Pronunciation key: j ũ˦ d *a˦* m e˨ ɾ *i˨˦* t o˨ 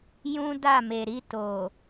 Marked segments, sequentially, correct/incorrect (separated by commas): incorrect, incorrect